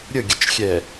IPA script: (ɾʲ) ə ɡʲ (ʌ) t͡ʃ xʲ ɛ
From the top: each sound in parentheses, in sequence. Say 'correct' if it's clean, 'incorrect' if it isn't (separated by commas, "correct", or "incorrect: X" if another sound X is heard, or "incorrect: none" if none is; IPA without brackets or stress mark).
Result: correct, incorrect: ə